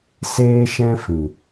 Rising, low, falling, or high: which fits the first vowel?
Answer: high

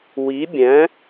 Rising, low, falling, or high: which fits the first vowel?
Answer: rising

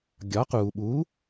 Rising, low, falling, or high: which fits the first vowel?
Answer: rising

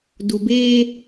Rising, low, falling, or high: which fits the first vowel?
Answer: low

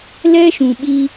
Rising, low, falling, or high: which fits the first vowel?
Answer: high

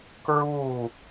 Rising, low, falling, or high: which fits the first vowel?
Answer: falling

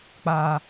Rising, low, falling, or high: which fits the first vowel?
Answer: high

